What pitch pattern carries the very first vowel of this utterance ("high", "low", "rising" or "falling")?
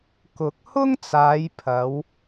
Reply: rising